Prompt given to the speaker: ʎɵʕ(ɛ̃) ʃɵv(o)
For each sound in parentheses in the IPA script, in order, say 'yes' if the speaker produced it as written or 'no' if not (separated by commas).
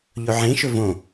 no, no